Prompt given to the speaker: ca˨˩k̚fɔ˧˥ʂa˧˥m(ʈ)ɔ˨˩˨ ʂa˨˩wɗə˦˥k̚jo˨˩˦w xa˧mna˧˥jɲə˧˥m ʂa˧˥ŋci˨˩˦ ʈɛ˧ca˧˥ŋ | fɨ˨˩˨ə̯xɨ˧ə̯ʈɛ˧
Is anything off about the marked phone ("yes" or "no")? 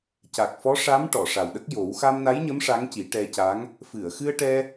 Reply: no